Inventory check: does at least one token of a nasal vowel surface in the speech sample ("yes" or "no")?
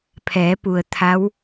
no